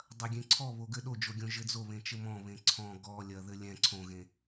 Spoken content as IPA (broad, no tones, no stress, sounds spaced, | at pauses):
dˤ ɐ ɡʲ ẽ ǀʰ ɔ β o ɡ ɘ ɗ o d͡ʒ o ɡʲ õ ʒ ɘ d͡z o β ẽ t͡ʃ ɘ m ɔ̃ β ẽ ǀʰ ɔ̃ ɡ ɔ lʲ ɐ ð ɘ lʲ ɛ̃ ǀʰ õ ɣ ẽ